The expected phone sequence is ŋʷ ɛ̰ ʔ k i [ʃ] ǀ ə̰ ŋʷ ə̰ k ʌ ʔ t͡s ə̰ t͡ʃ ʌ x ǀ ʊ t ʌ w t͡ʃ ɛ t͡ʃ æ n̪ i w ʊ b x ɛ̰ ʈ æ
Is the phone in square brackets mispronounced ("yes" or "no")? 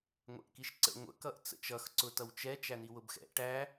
no